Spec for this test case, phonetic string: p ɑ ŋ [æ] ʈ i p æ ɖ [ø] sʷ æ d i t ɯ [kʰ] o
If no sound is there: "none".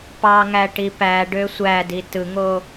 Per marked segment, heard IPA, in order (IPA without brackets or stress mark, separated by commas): æ, ø, ŋ